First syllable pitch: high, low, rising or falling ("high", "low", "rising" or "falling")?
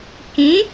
rising